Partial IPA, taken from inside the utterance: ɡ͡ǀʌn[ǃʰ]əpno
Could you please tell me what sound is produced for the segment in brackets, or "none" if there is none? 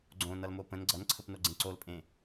ǀʰ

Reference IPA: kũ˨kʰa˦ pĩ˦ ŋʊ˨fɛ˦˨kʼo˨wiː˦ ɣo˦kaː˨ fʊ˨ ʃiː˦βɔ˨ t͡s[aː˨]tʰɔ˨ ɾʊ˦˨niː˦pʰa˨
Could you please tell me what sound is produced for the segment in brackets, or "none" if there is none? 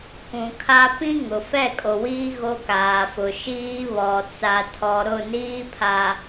a˨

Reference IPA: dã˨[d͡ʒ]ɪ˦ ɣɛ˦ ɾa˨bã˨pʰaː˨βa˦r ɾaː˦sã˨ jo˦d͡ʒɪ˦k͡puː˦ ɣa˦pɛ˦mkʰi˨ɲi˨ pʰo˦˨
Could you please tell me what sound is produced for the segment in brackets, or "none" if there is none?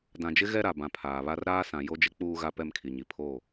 d͡ʒ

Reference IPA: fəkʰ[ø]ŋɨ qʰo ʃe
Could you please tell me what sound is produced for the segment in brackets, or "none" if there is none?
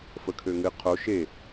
ø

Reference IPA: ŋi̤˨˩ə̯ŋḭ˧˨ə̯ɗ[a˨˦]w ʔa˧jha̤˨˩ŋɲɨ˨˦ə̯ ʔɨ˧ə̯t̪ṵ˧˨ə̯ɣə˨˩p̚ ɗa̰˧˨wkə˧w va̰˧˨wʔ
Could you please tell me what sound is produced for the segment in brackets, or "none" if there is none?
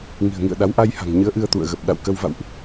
a˨˦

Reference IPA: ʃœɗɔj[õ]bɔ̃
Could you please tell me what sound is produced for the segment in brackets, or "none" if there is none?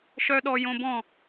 õ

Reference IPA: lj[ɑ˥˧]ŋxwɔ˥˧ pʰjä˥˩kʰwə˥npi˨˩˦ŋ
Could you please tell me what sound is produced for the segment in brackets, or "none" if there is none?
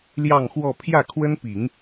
ɑ˥˧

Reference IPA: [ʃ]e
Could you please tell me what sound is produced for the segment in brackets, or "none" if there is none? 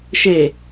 ʃ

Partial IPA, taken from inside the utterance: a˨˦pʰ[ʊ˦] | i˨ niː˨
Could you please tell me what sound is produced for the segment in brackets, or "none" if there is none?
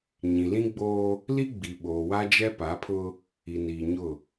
ʊ˦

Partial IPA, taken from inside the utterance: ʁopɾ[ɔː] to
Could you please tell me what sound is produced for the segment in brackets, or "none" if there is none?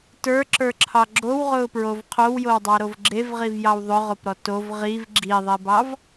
ɔ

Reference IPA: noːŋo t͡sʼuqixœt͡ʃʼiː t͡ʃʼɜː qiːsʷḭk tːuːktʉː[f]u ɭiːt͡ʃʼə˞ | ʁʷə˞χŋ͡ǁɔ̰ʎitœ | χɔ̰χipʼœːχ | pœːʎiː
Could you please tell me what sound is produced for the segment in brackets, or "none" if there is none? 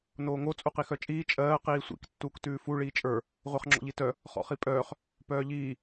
f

